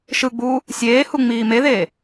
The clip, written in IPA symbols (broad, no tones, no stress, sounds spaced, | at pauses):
ʃ ɯ ɡ͡b uː | sʲ eː h u ŋ͡m iː m e ð eː